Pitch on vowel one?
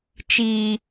low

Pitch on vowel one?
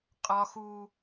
high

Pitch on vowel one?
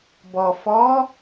low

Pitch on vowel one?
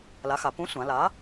rising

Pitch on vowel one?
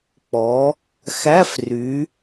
rising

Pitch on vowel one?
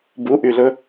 rising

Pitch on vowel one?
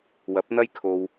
rising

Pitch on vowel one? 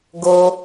high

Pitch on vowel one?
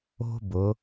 high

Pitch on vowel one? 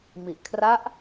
low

